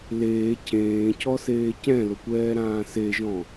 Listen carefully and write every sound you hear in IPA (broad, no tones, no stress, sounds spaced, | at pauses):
l eː cʰ ẽː cʰ ɔ s eː c ɛ̃ l ʊ kʷ ɛː ɾ ãː s e ʒ ɔ̃